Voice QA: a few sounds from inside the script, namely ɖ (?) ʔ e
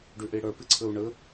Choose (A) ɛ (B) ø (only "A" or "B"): B